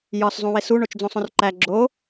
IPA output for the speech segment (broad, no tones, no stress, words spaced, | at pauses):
jɒs zˤũwesu ɳot͡ʃd͡zõsˤõrǃæ ɡ͡ǁo